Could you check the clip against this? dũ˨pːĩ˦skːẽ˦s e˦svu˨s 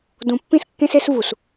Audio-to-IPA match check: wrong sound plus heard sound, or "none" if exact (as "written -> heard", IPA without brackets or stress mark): none